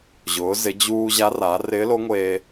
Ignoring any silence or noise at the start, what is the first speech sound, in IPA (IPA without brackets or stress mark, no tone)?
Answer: ʑ